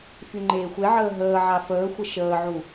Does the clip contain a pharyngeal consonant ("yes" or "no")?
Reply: yes